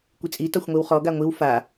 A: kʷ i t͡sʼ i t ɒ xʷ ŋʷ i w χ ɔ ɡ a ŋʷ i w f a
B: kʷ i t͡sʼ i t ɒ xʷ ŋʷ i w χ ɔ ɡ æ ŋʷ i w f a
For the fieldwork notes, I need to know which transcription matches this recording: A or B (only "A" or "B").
A